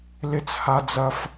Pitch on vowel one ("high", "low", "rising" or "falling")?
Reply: high